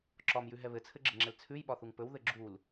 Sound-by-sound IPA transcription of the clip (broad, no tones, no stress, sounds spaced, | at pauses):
ǁ ɒ m j ʉ ɦ ɛ β ɘ t͡sʰ ɘ ɡ͡ǁ ɘ ŋ͡ǁ ɛ l t͡sʰ ʉ j ɓ ɒ θ u ŋ p ɵ w ð ɘ ɡ͡ǁ u l